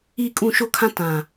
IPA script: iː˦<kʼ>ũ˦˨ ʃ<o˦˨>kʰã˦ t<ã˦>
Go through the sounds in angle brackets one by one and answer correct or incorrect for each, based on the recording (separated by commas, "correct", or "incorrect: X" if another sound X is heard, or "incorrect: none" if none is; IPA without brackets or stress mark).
correct, incorrect: o˦, incorrect: ã˨